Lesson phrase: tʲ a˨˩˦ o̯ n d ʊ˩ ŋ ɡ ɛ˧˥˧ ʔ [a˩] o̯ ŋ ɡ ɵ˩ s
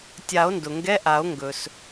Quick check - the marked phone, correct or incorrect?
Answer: incorrect